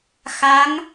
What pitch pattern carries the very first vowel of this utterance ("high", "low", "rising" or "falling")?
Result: rising